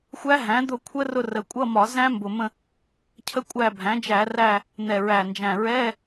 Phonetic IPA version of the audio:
xʷæ˦˥ɦæ̃˩˥ d̪ʊ˦˨kʷʰə˦˥rʊ˦˨ rə˨˩ kʷʼʌ˧˥˧mɒ˧˩˧ zæ̃˦˥mbʊ˨˩mə̃˦˨ | cʰə˦˥kʷʼæ˦˨ bʱæ̃˩˥d͡ʒæ˧˩˧ræ˦˨ | n̪ɛ˨˩ɹæ˨˩nd͡ʒæ̃˨˩ ɹɛ˧˥˧

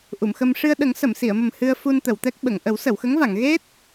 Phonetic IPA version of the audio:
ʔu˨˩˨mxə˧m ʂɨ˧ə̯ɗə˨˩˦ŋ sə˨˩˨msi˨˩˨ə̯mə˨˩m hɨ˧ə̯ fu˧nt̪ə˨˩˨wt̪ɛ˦˥k̚ ɓə˨˩˨ŋ ʔə˨˩˦wsə˨˩˨wxə˧˥ŋva˨˩˨ŋ ɣe˦˥t̚

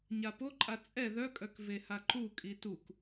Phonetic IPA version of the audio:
ɲapoǃʼa t͡sʼɛ ðœkʼœk vehaǃukʼi tuk

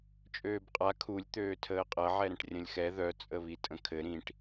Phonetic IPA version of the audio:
t͡ʃʼøːbqʼa kʰulʲ t̪øːtʰəːqʼɐ ʕɛɾə̃ʈrʲə̃lʲxɛ ðœ t͡sʼəβitʼə̃kʰɘ ɾĩʈ

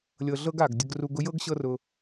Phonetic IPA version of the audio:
lʲɤ˧ɮɤ˦ɡ a˨ɡdʲə˧ɡru˧ɡ ʊ˦jɤ˦ɡɕɤ˦rʊ˧

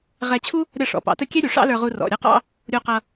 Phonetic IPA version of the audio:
ʁɛ˧t͡ɕʰu˥ | ɾʲʌ˥˩ʂɔ̰˩ pɑ̰˩˥tə˥˩ kʲɛ˥ɾʲu˩ ʂɑ̰˥lə˞˧ʁu˧ rɔ̰˩ ɾʲʌ˥qɑ̰˥ | ɾʲu˧qʌ˧

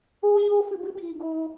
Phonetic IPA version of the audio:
oː˦ɲoː˦fɨ˧ bɨ˦ɓiː˨ɡoː˧

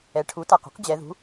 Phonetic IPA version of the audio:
ɛ˩˧ ʈʰu˩˥ta˩˧˩qṳ˩˥q d͡ʑɛ˩˧ðṳ˩˥

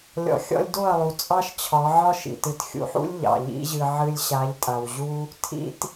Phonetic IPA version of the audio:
lʲɔ̰˨xʲɔ̰˧lʲ do˦˨ɐ̯lˠu˨ t͡sʼɑ˦ʃt͡ɕʰɒ˨˦ʕɒ˦ʃḭ˨ tɨ˨txʲṵ˧ħṵ˦lʲ ʎɑ̰˨ʎḭ˦ʑɨ˧ ʕɨ˧lʲɕa˨˦ʎtʼa˨wʑu˦ | tʰḭ˦t

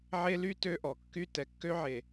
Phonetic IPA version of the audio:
ʕe˦ly˦ tø˦ʔɔ˨kːy˦ tɛ˨kːø˦ʕe˨

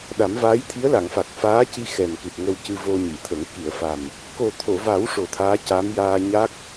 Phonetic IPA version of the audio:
ɗa˨˩˦mvaː˧˥jt̪ʰi˧˥ə̯ la˨˩˨ŋfa˨˩k̚faː˧˥ci˧ xɛ˨˩nkɨ˨˩p̚ ŋə˧wcɨ˧ vo˧ɲi˨˩˨t̪ʰə˨˩˦ŋ ki˨˩˨ə̯fa˨˩m | ko˨˩t̪ʰo˨˩˨va˨˩˦w ʂo˨˩˦t̪ʰaː˧˥ca˧˥m jaː˧ɲa˦˥k̚

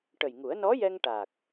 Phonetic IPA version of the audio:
ʈə˨˩jŋu˨˩˦ə̯ nɔ˧˥jɛ˧ŋ ʈa˨˩k̚

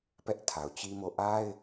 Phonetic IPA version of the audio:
pɛ˦ʔtʰa˨ʊ̯t͡ɕi˦mo˦˨ ʔa˦ɪ̯

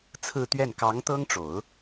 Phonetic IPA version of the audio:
t͡sʰɹ̩˥˧t̪ɥɛ˥˩n kɑ˧˥ŋt̪ɤ˥ŋʈ͡ʂo˨˩˦ʊ̯

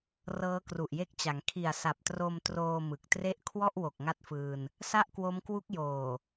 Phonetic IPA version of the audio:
rɤː˦˥kru˨˩ʔje˦˥k̚t͡ɕa˩˦ŋ kʰi˨˩a̯sa˨˩p̚tro˧mtroː˧ mɯ˨˩k̚tre˥˩ʔ kʰwɔ˥˩ʔwo˨˩k̚ ŋa˥˩t̚fɯː˧n | sa˥˩ʔkwo˦˥mkwu˦˥k̚joː˨˩

